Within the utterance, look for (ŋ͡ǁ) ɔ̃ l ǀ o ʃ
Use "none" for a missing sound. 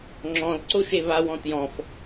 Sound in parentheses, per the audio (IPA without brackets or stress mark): ŋ͡ǁ